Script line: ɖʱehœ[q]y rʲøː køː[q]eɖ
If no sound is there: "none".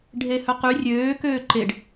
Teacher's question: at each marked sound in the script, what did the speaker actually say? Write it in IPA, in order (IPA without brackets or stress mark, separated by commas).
q, ǃ